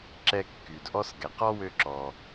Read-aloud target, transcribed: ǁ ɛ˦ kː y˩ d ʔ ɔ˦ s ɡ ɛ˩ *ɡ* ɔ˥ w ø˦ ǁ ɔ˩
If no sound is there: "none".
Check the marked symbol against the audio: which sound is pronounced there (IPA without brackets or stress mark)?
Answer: q